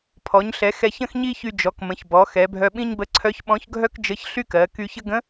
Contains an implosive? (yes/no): yes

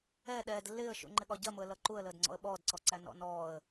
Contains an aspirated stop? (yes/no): no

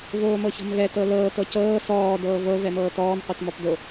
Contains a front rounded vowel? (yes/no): no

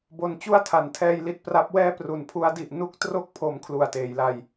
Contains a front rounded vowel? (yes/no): no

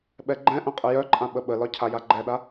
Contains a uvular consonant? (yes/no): yes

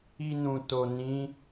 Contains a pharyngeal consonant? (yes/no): no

